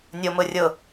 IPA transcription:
nʲ o m ʊ rʲ ʊ

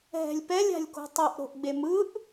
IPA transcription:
ɦ ɛ̤ lʲ p ɛ lʲ a̤ lʲ k o̤ tˤ ɯ ʔ ɾ o̤ ʔ ɡ͡b e m ɯ ʔ

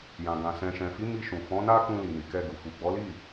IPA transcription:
j ã˨ ɡ ã˨ s ɛ̃˨ ʃ ɛ̃˨ f i˨˦ m i˧ ʃ ũ˨ f ɔ̃˨˦ n a˦ k ũ˧ l i˨ n i˨ k ɛ˧ ɡ u˨ f u˨ ɡ͡b ɔ˨˦ l i˦˨

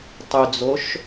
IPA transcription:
tˤ y d͡z o ʃ

